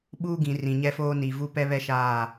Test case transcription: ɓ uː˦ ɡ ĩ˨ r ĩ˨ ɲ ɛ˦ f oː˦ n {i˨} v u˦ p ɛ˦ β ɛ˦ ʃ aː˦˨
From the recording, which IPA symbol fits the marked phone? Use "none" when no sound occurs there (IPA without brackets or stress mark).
i˨